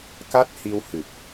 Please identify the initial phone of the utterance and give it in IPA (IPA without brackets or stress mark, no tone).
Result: k